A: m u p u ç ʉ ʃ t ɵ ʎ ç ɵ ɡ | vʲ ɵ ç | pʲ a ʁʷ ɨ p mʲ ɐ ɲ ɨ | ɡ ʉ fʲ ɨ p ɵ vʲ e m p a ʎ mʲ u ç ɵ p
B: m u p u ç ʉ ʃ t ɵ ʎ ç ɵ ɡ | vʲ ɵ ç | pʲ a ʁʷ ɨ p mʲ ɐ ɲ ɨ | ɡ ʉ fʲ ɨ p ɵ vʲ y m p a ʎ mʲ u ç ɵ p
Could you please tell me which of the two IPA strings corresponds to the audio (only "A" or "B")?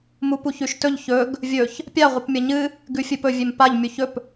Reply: A